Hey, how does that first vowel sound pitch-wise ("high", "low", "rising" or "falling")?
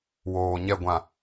low